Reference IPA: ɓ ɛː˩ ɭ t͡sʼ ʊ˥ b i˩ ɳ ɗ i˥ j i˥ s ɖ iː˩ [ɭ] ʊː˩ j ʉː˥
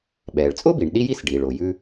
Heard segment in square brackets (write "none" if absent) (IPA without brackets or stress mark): ɭ